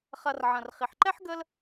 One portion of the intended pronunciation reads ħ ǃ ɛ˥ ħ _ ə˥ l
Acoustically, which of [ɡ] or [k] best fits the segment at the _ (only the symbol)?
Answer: ɡ